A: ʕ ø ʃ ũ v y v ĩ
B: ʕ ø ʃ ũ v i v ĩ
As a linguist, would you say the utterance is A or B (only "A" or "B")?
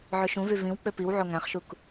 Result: A